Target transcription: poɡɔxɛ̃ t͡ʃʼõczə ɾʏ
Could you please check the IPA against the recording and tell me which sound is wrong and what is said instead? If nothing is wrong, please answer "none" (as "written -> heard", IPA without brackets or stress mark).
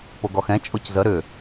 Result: õ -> o